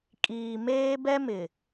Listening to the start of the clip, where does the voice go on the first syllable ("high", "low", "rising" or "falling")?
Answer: low